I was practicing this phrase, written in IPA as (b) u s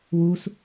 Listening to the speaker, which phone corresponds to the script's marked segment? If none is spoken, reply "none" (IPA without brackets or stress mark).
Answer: w